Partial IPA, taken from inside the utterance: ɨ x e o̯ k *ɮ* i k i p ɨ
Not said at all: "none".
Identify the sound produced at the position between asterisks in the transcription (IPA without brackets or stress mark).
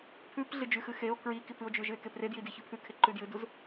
ɹ